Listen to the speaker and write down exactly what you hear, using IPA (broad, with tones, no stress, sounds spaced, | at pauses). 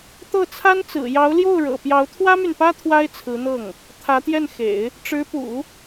t̪ ɤ˥˩ t͡sʰ a˥ n t͡s ɹ̩˨˩ j ɑ˧˥ ʊ̯ l j o˥˩ ʊ̯ ɻ ɤ̰˨˩ p j ɑ˧˥ ʊ̯ t̪ʰ w ä˥ m y˨ n p ä˥ t̪ʰ w a˥ ɪ̯ t͡sʰ ɹ̩˧˥ n̪ ɤ˥˩ ŋ | t̪ʰ ä˧˥ t̪ j ɛ˥˩ n x ḛ˨˩˦ ɪ̯ | ʈ͡ʂ ɻ̩˧˥ p ṵ˨˩˦